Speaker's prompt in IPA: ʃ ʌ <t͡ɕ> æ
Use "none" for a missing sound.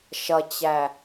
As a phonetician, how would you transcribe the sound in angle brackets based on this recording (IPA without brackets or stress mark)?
t͡ɕ